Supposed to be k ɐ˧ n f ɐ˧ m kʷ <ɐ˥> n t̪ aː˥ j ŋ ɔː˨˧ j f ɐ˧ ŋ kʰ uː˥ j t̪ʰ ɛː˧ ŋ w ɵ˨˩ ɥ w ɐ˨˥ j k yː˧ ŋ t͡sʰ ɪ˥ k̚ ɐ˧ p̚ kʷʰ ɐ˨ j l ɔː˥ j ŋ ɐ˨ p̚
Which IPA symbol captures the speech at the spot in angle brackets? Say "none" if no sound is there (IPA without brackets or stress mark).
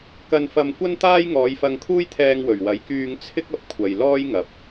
ɐ˥